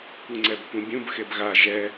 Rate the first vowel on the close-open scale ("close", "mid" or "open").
close